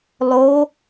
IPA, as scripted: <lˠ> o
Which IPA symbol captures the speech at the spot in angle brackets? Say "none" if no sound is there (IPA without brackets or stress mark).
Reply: lˠ